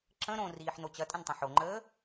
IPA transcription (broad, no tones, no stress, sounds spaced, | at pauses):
ǁ ə̃ ɾ õ r iː ħ n o t͡ɕ ɐ tʼ ə̃ n tˤ ɐ̃ ħ o ŋ͡ǃ əː